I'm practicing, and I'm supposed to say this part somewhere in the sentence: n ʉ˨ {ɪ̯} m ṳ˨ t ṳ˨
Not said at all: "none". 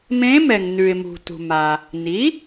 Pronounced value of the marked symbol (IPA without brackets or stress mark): ɪ̯